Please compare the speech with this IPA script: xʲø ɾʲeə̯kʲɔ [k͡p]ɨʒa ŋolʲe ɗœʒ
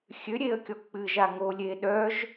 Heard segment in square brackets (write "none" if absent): k͡p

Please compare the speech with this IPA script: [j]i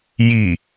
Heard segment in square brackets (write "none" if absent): j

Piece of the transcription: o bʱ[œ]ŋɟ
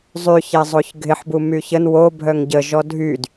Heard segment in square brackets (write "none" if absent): œ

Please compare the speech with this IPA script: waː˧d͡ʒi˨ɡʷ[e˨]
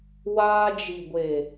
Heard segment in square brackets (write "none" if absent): e˨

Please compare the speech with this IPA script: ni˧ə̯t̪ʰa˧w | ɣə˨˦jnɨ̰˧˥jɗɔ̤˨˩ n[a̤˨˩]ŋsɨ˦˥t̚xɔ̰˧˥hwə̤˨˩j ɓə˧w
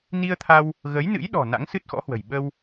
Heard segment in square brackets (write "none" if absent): a̰˧˥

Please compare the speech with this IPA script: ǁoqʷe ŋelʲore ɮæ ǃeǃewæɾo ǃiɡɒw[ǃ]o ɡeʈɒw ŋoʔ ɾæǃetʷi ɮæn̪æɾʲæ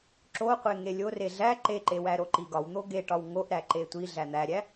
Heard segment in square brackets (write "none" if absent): n̪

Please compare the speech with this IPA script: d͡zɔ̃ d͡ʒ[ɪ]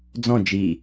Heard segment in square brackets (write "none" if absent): i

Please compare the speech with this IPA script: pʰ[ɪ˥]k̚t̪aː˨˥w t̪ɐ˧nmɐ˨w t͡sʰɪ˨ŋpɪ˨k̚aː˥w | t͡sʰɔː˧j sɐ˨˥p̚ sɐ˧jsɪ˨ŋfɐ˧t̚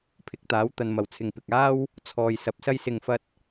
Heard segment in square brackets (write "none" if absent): ɪ˨˥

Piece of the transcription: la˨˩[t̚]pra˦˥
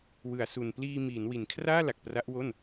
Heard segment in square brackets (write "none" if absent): k̚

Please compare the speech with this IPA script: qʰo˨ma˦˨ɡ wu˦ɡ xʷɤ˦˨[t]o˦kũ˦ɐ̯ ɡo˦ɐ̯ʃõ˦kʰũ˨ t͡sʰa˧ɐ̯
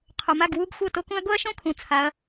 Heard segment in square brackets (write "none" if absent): t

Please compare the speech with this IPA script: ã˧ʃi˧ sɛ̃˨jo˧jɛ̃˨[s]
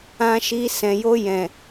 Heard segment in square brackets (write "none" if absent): none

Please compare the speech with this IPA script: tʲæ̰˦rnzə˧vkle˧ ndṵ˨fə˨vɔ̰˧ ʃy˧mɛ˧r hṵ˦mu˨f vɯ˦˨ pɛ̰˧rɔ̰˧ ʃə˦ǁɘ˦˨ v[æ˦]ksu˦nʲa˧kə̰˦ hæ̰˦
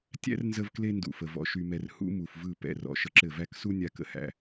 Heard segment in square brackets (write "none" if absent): æ˦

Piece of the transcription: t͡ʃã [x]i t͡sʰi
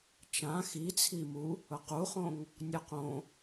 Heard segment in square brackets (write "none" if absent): x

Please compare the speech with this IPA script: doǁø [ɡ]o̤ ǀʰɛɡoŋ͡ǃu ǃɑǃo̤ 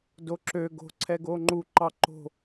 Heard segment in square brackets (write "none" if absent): ɡ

